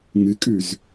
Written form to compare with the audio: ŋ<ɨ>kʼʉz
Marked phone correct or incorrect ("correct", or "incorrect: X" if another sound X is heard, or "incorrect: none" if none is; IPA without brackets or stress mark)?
correct